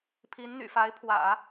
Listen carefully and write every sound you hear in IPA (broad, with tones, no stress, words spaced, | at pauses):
pʰi˧˥nn̪y̰˨˩fa˧˥ɪ̯pʰwä̰˨˩˦